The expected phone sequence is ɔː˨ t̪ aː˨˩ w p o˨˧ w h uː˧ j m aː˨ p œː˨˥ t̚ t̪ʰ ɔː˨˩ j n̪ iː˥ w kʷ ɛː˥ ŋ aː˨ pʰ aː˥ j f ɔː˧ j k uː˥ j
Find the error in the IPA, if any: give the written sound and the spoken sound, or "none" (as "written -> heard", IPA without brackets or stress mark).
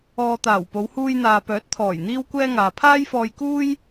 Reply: m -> n̪